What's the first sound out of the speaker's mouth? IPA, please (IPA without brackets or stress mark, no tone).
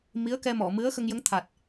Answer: m